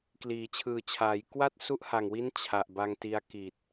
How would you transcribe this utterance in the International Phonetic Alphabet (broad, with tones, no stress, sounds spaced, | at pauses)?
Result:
k l iː˩˦ t͡ɕʰ ɯː˨˩ t͡ɕʰ aː˩˦ j k w a˥˩ t̚ s u˦˥ ʔ h a˨˩ ŋ w i˦˥ n t͡ɕʰ a˨˩ ʔ b a˧ ŋ t i˧ a̯ k i˨˩ t̚